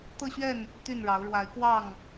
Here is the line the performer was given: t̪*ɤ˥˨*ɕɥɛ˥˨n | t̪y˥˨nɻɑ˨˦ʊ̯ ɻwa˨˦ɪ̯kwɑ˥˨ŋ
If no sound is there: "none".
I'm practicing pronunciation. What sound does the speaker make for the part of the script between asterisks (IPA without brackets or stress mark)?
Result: ɤ˥˨